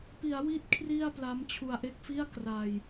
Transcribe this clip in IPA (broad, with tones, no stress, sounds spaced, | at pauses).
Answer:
p i˩˦ a̯ w i˦˥ t̚ kʰ r i˥˩ a̯ p l a˦˥ m t͡ɕʰ u˧ a̯ ʔ e˥˩ k̚ f i˥˩ a̯ k r a˧ j